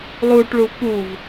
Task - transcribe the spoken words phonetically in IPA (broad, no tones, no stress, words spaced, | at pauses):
lˠuʈɭu puv